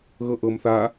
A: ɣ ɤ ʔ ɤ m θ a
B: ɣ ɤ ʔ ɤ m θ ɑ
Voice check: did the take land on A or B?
A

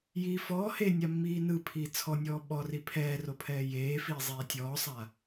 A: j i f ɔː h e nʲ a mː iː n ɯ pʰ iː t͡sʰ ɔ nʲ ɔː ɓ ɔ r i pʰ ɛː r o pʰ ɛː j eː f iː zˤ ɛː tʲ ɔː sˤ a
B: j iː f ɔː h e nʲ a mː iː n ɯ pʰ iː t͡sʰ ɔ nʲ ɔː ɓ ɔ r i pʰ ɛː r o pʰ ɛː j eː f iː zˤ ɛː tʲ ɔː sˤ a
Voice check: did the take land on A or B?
B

